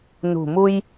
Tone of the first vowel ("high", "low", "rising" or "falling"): low